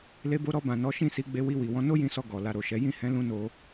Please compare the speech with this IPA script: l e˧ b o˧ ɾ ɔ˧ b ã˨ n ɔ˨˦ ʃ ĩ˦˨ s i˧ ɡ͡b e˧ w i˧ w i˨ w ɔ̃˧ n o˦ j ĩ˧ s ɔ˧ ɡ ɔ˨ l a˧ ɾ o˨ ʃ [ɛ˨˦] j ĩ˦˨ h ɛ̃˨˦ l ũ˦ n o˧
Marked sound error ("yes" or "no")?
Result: no